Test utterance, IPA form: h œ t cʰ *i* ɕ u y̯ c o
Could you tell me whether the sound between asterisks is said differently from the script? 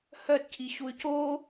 no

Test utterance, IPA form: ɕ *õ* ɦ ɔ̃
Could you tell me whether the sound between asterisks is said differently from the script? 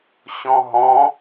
yes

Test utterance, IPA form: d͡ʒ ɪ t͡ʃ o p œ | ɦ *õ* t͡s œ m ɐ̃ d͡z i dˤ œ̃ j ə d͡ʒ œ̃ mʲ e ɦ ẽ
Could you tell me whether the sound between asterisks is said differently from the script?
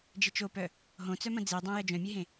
no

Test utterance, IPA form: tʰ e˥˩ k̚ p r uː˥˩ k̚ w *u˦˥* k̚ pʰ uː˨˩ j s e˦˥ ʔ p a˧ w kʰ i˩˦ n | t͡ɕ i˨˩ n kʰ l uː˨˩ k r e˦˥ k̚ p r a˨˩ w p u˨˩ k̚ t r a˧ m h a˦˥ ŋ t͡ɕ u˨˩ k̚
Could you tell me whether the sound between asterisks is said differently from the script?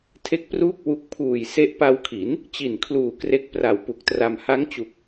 no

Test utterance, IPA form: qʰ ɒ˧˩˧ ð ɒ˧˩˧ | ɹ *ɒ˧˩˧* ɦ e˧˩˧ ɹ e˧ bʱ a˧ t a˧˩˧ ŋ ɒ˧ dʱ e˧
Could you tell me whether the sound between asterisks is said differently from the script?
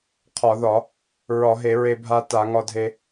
no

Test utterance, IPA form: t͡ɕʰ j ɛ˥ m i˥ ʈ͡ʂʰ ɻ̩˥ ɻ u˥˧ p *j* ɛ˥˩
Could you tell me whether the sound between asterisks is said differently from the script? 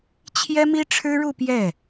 no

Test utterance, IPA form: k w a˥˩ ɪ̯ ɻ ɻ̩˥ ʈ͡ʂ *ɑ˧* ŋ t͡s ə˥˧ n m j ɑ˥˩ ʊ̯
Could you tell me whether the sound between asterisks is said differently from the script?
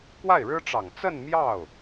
yes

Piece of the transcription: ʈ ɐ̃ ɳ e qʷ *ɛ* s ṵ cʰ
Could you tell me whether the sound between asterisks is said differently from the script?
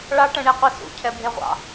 no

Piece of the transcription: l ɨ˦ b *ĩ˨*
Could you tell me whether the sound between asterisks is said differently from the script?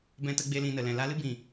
no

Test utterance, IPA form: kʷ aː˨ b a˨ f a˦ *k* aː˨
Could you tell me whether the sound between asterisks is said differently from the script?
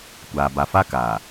no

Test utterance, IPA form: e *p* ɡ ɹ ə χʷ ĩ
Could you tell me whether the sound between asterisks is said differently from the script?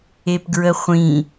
no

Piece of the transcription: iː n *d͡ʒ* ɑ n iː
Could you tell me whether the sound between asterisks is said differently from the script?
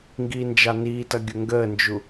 no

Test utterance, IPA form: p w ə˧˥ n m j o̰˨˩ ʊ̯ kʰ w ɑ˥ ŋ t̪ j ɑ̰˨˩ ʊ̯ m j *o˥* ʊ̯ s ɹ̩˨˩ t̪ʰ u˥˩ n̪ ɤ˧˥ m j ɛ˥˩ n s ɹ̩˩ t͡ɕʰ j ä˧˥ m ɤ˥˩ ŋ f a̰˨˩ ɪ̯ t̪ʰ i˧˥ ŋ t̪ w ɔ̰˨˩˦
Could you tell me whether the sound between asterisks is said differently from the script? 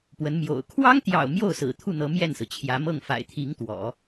yes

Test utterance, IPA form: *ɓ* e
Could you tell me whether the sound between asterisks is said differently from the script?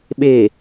no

